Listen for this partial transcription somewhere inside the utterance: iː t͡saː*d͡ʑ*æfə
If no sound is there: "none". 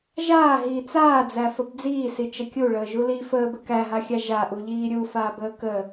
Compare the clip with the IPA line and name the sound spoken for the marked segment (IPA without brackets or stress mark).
d͡z